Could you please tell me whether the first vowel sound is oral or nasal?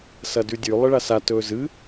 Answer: oral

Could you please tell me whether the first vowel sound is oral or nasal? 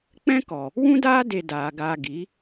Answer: nasal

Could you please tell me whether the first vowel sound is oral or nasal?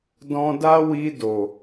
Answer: nasal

